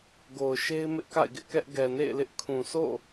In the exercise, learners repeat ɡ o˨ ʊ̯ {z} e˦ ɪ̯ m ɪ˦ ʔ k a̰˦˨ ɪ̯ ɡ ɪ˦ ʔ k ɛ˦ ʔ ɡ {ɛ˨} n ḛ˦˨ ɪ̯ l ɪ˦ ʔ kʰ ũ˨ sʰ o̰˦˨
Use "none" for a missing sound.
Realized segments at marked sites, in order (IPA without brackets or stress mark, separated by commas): ʃ, ɛ˨